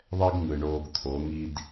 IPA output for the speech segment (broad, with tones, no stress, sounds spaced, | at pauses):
ðˤ ɛ˦ ɡ ŋ ɯ˨ ɳ oː˧ ɡ t̪ʰ o˨˦ ŋ i˦ d